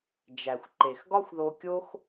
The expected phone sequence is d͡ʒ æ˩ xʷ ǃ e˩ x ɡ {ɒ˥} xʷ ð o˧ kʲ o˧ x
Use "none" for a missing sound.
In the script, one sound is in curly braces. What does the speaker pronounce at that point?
ɒ˥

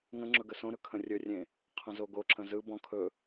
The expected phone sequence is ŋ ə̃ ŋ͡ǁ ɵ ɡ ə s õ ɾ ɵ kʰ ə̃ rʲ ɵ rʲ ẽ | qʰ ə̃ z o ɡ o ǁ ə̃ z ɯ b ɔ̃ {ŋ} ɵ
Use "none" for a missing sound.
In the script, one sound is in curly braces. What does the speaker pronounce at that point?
kʰ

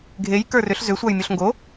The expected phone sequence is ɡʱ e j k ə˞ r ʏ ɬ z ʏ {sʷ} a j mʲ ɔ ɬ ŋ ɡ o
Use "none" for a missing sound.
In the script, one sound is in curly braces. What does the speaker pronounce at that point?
sʷ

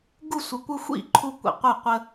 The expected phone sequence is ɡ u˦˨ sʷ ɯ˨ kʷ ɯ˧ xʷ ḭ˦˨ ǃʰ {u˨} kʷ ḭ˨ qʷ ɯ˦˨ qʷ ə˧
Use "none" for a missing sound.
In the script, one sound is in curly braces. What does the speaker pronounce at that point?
u˧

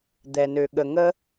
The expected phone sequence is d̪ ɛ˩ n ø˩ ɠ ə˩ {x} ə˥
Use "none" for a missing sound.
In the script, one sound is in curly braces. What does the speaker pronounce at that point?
ŋ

